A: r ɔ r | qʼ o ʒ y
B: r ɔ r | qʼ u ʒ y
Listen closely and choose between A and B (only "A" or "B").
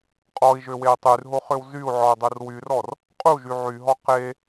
B